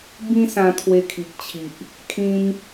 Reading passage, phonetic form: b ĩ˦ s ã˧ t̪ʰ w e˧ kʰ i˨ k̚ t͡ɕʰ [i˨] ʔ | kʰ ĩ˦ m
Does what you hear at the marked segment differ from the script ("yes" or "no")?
no